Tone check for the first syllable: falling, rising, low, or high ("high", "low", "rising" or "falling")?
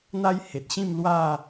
high